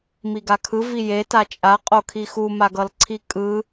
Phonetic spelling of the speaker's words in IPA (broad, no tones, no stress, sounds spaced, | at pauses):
m i ɡ a kʰ ɯ v i j e t a t͡ʃʼ a qʼ o kʰ i x u m a ɡ ʌ l ǀʰ i kʼ ɯ